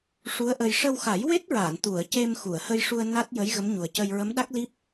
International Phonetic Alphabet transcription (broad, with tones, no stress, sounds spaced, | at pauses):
ʂ u˧˥ ə̯ ʔ ə˧ j ʂ ə˧ w x a˨˩˦ j w e˦˥ t̚ ɹ aː˨˩˨ n t̪ u˨˩˨ ə̯ c e˧ m x u˨˩˨ ə̯ h ə˧ j ʂ u˧ ə̯ n a˦˥ t̚ j ə˧˥ j ɣ ə˧˥ m ɲ u˨˩ ə̯ c ə˧ j ɹ ə˧˥ m ɗ a˦˥ k̚ l i˦˥ p̚